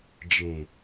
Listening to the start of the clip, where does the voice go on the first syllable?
low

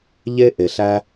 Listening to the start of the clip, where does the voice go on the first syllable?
high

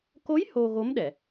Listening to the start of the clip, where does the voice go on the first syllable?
rising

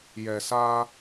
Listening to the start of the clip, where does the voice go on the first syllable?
low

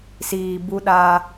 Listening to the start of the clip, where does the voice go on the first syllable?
low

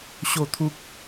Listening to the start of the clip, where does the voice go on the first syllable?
falling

